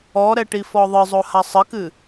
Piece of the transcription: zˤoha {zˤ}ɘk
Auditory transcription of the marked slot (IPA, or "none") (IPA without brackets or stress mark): sˤ